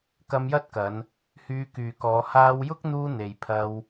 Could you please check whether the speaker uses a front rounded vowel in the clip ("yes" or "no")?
yes